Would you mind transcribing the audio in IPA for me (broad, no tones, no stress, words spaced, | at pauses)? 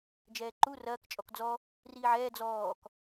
d͡ʒɛːǃu rɐːk t͡ʃʼɔkd͡zɔ | riːʕɛː d͡zɔːk